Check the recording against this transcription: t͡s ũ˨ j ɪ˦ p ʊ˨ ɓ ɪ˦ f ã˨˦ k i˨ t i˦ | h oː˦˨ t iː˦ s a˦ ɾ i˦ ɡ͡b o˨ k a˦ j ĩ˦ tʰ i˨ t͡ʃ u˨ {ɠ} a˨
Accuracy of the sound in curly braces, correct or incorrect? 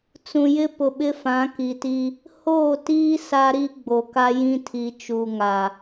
incorrect